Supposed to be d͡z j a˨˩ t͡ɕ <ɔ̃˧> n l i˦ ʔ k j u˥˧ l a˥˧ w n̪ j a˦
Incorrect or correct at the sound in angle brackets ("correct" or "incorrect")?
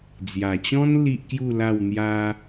incorrect